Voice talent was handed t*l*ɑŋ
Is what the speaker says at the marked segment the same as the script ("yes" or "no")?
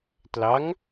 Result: yes